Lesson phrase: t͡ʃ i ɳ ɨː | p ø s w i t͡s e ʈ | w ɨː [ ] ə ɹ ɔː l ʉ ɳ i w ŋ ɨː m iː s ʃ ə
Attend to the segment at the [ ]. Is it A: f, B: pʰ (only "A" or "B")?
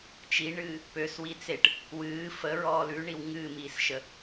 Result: A